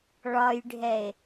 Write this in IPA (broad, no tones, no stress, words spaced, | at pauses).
ɭɒjɖʱɛe̯